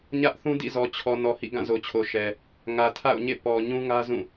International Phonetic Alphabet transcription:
ɲ ä˦ ʔ θ ũ˦ d ḭ˦˨ z ɔ˨ t͡ɕʰ ɔ˨ n ɔ˨ h ḭ˦˨ ɡ ã˦˨ z o˨ t͡ɕʰ o˨ ʃ ɛ˨ | ŋ ä˨ tʰ a̰˦˨ ʊ̯ ɲ ḛ˦˨ p ɔ˨ ɲ ũ˦ ŋ ä˦ z ũ˦˨

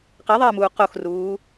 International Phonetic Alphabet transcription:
q e ðˤ eː m uː q o x r uː

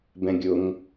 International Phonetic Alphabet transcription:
b ɛ̃ ɡʲ ʊ ŋ

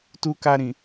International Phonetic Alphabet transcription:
t u˧ k a˧ ɾ ĩ˨

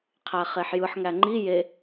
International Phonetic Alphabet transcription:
qʰ æ χ e ħ j ɯ ħ ŋ æ ŋ͡ǃ i j e

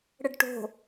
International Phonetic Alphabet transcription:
ɽ ə ɖ ʈ o̤

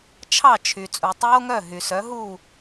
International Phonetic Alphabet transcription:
t͡ʃʰ ɑ˥˩ t͡ʃʰ y˩ t͡sʼ u˩ tˤ oː˥ ŋ œ˥˩ ɦ y˩ s œ˩˥ ɦ u˥˩

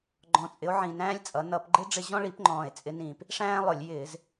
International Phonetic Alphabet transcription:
ɡ͡ǃ ɔ̃˨˩ t͡sʼ ɪ˨˦ o̯ ʕ ĩ˨˩ n æ̃ː˥ lʲ t͡sʼ ʌ˨˦ n ʌ˧˩˧ p ɡ͡ǃ ɪ˥ ɖ͡ʐ ɪ˦˨ ʑ ɔ̃˥ ɭ i˨˦ p ŋ͡ǃ ɔ̃ː˨˩ e̯ t͡sʼ ɪ˨˦ n ĩː˨˩ p | ʂ æ̃ː˥ lˠ ʊ˧˩˧ lʲ j ɪː˧˩˧ z

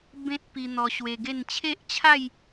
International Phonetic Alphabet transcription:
b ẽ˦ t̚ p i˧ n̪ ɔ˧ ɕ w e˧ ɡ e˥˧ n t͡ɕʰ e˦ ʔ t͡ɕʰ a˥˧ j

